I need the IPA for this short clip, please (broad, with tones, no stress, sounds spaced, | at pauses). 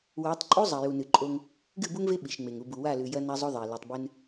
w a˨˦ tˤ ǃʼ u˦ zˤ ɐ˨ j u˨ n ɨ˨ ǃʼ o˦ ŋ | ɡ ɨ˦˨ b u˦ ŋ v e˦ ɓ i˨ ʃ ŋ͡m e˨ ŋ u˨ b u˨ w a˦˨ l ʉ˨ j ɐ˦ n a˦ zˤ o˦ ðˤ e˨ l ɵ˨ tˤ b ɨ˦ n